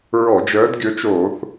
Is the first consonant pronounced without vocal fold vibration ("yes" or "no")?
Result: no